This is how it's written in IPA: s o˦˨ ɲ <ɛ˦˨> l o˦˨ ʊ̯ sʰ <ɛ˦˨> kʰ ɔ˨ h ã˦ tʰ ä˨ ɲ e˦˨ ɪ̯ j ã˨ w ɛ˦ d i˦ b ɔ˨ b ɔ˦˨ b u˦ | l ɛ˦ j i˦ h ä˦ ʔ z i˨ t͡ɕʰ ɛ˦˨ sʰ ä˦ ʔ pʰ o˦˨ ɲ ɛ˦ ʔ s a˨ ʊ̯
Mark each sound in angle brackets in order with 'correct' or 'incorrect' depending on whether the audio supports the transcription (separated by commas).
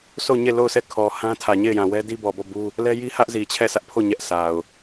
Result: incorrect, correct